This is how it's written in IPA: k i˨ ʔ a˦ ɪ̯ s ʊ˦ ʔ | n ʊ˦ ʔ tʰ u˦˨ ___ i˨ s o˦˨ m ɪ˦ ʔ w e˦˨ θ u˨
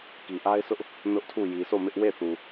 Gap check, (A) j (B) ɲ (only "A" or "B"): A